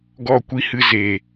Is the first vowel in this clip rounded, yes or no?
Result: yes